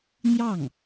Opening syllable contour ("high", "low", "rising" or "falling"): falling